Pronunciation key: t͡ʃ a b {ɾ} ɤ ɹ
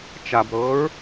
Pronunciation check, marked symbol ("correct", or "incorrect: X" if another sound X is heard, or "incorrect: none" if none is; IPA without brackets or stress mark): correct